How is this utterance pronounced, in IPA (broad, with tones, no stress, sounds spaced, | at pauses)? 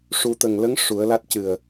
ʂ u˨˩˦ t̪ ə˨˩ ŋ l ə˧˥ ŋ ʂ u˨˩˦ ə̯ l a˦˥ t̚ c ɨ˨˩ ə̯